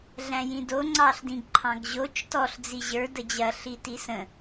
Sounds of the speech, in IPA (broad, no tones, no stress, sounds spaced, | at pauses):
ɮ æ̃ j ĩ d o ŋ͡ǀ ɑ ɬ d ĩ ɡ ǃʰ ɑ̃ ɡ ʑ o t͡ʃ t ɔ ɬ d͡z i ʑ ə˞ d ə d͡ʑ ɐ ɬ i t i s ə̃